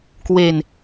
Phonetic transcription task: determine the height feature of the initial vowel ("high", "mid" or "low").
mid